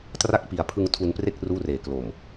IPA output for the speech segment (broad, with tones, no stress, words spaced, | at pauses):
tra˦˥k̚pi˩˦a̯pʰɯ˧ŋ tʰu˧npre˥˩k̚ ruː˥˩reː˨˩ klo˨˩m